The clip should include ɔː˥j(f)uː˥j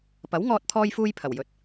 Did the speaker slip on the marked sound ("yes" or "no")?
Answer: no